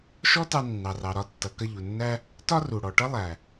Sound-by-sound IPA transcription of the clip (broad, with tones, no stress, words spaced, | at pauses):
ʃɔ˥tɑ˧ nːɑ˩rɑ˩ɾɒ˧tːʌ˩ kʌ˧ʎu˩nːæ˥ | tɒ˥ru˩ ɽɔ˩ ʈʌ˥lˠæ˩